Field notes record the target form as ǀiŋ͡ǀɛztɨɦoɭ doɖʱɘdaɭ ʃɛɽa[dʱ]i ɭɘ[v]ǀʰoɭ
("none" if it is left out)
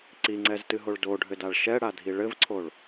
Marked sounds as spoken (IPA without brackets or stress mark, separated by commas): dʱ, v